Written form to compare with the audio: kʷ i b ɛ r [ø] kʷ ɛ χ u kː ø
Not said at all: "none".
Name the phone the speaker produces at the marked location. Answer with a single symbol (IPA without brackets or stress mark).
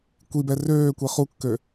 øː